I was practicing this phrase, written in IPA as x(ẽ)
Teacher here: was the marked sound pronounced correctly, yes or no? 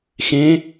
yes